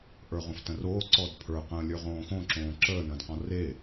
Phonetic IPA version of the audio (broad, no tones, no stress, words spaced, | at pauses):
ʔə˞ʁõftə̃roː ǀɔdpʰə˞ qə̃ːlʲə˞ʁõːxõ ǁõːǁəː nə̃ːdqɔ̃re